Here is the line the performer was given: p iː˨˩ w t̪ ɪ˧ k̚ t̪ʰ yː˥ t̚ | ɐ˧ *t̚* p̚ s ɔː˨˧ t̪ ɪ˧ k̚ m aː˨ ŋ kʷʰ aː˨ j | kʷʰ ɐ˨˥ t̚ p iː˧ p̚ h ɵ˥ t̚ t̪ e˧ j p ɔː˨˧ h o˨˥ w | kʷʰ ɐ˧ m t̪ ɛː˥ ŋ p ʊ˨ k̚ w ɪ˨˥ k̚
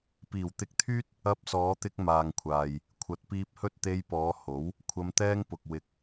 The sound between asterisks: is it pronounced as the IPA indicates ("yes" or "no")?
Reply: no